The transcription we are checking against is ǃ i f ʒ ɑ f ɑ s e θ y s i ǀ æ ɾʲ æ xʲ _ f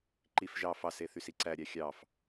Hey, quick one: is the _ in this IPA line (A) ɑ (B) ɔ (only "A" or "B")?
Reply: A